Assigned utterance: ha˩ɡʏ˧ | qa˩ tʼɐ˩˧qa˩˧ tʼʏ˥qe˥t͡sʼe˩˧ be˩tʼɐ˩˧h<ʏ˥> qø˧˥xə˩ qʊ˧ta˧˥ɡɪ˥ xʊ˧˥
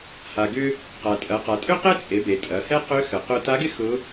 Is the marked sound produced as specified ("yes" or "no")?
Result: no